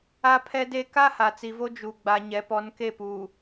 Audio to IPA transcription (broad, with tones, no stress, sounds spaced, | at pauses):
a˦ pʰ ɛ˦ d e˦ k a˦ h a˨ t͡s i˨ v o˦ d͡ʒ u˨ ɡ͡b a˨ ɲ ɛ˨˦ p ɔ˨˦ n k e˦˨ p uː˨